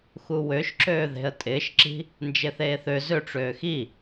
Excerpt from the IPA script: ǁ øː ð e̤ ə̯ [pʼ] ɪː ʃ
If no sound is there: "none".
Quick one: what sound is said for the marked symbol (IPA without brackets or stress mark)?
tʼ